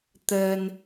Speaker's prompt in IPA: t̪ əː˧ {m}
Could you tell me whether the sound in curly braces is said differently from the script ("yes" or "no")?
yes